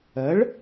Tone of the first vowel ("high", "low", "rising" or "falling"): rising